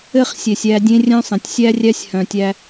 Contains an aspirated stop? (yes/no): no